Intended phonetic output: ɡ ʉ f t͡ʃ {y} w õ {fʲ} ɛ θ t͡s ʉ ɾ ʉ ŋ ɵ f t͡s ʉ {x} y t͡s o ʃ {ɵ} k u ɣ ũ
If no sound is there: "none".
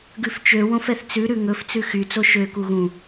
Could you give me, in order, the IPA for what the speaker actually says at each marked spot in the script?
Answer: ø, f, x, ø

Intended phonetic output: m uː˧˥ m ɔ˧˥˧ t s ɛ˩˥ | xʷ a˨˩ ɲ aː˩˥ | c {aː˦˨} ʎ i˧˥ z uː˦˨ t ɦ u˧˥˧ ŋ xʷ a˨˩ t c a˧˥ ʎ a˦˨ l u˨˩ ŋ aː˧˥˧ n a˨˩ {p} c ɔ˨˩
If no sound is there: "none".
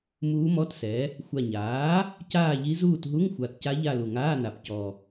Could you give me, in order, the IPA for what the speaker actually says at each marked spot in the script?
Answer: aː˦˨, p

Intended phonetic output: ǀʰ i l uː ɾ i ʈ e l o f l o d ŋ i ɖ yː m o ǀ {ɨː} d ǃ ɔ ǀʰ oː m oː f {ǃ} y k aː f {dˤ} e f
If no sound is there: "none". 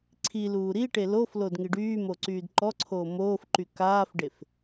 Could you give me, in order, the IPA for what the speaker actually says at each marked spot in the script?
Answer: yː, ǃ, ɖ

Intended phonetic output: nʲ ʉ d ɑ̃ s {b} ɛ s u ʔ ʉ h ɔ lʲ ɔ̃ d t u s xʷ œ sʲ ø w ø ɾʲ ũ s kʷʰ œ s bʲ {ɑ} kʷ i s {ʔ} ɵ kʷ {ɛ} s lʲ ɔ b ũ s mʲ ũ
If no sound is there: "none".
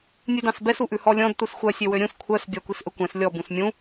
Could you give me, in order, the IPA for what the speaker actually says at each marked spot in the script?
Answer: b, ɑ, ʔ, ɛ̃

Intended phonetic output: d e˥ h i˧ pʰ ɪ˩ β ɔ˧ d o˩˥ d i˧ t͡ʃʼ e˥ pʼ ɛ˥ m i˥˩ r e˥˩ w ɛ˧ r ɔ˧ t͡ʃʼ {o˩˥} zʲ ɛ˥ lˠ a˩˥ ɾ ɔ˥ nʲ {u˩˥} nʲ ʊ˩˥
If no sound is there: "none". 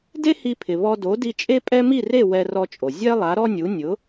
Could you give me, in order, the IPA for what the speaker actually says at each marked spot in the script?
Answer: o˩, u˩˥

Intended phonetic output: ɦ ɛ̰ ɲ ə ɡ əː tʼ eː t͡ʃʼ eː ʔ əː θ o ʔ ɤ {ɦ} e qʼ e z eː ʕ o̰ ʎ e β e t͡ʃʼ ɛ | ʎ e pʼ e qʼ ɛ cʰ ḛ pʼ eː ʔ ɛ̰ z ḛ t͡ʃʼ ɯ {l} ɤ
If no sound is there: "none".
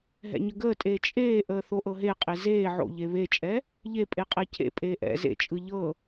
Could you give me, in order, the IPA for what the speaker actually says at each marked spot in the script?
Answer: ɦ, ʎ

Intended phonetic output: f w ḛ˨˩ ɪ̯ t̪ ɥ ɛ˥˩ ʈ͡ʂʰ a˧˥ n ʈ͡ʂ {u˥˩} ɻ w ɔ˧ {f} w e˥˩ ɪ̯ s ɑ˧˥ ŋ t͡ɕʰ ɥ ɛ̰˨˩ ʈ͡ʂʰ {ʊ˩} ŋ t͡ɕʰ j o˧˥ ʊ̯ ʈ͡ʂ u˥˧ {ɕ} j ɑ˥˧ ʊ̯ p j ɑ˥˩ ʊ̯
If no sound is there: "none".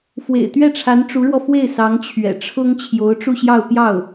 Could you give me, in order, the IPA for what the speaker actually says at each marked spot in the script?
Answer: u˧˥, f, ʊ˥, ɕ

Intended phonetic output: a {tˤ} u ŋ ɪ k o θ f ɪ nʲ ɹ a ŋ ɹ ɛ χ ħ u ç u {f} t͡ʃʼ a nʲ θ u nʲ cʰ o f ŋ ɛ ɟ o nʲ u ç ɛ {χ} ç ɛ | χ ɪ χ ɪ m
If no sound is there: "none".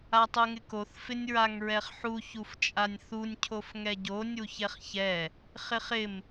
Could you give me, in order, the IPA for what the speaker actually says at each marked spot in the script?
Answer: tˤ, f, χ

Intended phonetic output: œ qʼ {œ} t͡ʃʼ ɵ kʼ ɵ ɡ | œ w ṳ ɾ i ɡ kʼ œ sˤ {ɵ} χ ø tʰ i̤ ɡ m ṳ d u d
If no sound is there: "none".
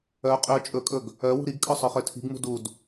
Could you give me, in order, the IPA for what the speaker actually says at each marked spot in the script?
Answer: ø, œ

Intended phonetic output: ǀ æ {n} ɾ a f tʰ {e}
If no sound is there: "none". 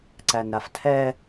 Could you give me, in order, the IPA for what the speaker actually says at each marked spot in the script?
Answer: n, ɛ

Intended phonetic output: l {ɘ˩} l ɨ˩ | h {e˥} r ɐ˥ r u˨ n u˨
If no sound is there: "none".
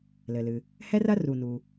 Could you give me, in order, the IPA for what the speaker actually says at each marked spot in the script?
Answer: ɘ˩, ɛ˥

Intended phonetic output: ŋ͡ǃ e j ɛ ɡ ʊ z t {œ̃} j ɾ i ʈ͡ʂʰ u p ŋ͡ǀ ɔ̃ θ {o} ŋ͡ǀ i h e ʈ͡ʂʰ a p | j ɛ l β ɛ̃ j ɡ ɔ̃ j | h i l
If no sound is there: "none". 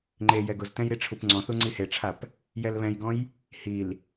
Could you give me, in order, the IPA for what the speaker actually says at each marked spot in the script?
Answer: ɛ̃, u

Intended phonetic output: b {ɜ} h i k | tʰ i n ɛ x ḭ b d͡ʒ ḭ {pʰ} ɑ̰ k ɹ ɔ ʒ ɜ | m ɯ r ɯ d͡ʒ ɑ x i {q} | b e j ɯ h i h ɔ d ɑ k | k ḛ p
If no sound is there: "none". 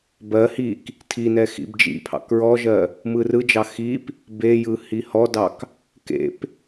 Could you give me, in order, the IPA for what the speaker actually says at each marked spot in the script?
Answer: ɜ, pʰ, p

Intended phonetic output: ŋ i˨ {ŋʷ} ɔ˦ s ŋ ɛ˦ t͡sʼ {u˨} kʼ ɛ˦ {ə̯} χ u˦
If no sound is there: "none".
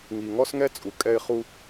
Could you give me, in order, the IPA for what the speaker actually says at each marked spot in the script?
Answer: ŋ, u˨, ɪ̯

